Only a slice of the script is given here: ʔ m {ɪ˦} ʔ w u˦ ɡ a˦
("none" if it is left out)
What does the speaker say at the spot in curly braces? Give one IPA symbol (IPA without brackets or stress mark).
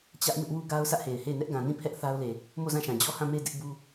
ɪ˦